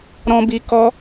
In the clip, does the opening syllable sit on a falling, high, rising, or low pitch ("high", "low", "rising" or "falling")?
high